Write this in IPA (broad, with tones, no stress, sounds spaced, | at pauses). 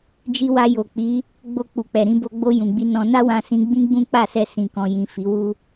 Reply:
d͡ʒ i˧ w a˧ j o˨ k͡p i˨˦ | ɡ͡b o˧ k͡p u˨ k͡p ɛ˨ ɾ ĩ˧ b o˧ ɡ͡b o˧ j ũ˨ ɡ͡b i˧ n ɔ̃˧ n a˦ w ã˧ s ĩ˧ ɡ͡b ĩ˦ ɡ͡b ũ˦ k͡p a˦˨ s ɛ˧ s ĩ˨ k ɔ̃˨ j ĩ˨ f i˨˦ w u˦